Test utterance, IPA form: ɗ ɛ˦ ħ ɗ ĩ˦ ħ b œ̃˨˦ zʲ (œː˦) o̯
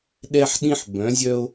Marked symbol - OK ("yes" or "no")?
no